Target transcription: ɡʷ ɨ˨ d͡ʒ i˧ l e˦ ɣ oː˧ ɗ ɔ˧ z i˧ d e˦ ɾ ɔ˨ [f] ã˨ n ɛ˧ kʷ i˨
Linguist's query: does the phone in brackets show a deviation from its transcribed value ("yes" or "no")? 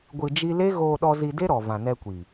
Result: yes